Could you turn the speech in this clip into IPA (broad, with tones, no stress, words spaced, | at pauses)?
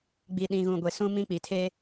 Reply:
ɡ͡bi˨ɗĩ˨ɣũ˨ ɡʷe˨ sũ˨mĩ˨ k͡pi˨tʰe˦